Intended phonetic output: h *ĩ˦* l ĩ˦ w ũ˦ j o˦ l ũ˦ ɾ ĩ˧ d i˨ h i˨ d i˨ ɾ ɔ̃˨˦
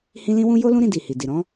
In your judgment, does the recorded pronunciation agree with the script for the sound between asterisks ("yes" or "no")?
yes